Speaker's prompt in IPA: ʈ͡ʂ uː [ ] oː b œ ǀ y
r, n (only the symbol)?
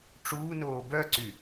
n